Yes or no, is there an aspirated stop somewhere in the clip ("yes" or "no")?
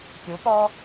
no